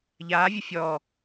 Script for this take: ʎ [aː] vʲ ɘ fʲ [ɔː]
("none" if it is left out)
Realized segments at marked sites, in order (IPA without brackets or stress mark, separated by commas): aː, ɔː